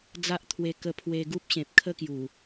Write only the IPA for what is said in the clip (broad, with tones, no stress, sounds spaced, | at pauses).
d͡z a˦ ʔ t̪ʰ w e˧ k ə˧ pʰ w e˧ ɡ u˦ p̚ ɕ ẽ˨ p̚ kʰ ə˦ k j u˨˩